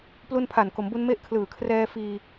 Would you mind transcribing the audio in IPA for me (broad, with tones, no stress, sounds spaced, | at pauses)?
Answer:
p l u˧ n pʰ a˨˩ n k o˩˦ m b u˧ n m e˦˥ ʔ kʰ l ɯː˨˩ kʰ r ɛː˧ f iː˧